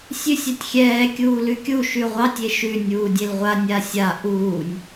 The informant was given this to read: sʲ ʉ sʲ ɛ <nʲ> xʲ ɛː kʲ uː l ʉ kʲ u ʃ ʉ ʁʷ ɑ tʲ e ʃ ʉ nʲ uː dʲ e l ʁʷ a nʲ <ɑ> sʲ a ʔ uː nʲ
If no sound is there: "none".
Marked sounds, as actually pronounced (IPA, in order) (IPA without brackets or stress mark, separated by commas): tʲ, a